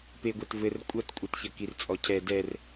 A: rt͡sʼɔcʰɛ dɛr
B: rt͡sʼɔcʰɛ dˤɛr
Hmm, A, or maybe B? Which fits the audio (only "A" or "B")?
A